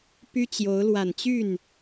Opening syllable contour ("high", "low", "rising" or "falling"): high